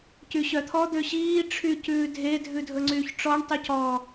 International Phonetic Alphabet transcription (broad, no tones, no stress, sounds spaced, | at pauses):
c y ɕ œ t̪ʰ ɔ d̪ ø ɕ iː ʈ͡ʂʰ y c ʉː dʱ e dʱ ʉ dʱ ɵ ŋ͡ǀ yː ç ʈ͡ʂ ɔ ɳ tˤ y c ɔː